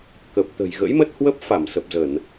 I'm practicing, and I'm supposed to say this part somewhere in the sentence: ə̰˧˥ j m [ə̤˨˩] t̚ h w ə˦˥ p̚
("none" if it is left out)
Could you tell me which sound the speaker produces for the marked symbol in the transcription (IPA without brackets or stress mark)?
ə˦˥